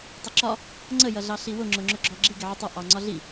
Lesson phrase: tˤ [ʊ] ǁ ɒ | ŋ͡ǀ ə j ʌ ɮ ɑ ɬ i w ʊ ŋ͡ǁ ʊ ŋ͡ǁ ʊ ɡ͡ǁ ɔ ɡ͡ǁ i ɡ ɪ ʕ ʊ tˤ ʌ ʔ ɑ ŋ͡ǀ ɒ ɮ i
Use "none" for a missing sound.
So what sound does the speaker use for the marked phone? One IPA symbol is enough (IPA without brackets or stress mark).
ʊ